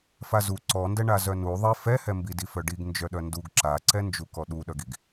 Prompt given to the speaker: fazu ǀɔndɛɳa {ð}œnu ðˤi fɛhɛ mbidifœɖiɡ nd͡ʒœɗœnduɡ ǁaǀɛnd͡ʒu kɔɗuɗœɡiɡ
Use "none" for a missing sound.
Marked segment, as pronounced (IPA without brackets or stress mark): z